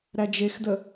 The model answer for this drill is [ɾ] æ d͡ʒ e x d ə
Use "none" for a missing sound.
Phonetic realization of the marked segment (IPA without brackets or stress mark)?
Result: ɾ